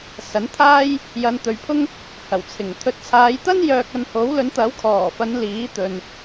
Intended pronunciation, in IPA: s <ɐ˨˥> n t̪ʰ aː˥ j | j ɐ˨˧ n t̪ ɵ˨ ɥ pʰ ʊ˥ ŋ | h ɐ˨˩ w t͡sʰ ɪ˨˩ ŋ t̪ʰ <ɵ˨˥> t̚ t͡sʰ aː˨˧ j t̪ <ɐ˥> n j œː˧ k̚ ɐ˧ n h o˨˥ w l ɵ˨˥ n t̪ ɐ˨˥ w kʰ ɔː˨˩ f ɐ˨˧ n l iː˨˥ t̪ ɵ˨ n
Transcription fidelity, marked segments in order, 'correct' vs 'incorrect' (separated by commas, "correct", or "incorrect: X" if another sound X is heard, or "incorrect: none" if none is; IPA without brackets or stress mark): correct, incorrect: ɵ˨, correct